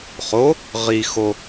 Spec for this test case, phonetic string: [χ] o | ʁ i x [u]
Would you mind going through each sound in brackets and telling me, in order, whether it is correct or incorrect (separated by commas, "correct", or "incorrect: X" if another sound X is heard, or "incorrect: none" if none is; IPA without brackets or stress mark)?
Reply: correct, incorrect: o